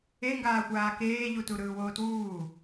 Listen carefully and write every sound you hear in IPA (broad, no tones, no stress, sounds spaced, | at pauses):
e ŋ ɡ aː xʷ aː k eː ʎ u t u ɾ ɯː w oː t w uː